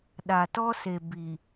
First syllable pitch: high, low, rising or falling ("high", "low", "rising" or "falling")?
low